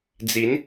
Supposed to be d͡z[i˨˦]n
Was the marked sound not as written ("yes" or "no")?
no